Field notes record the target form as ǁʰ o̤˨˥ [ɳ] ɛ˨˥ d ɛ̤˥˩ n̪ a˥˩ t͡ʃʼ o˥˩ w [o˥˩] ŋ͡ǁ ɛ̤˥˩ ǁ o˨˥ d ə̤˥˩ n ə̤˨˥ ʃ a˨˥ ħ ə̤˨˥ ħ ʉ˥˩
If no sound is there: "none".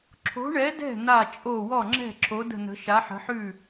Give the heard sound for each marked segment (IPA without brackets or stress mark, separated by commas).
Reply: ɳ, ɔ˥˩